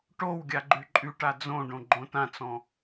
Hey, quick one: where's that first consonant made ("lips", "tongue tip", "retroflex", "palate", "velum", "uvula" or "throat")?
retroflex